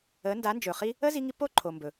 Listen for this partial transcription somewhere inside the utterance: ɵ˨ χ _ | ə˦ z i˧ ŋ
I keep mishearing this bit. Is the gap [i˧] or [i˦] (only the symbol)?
i˦